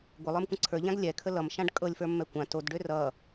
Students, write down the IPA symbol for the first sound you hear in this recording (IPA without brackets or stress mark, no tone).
ɡʷ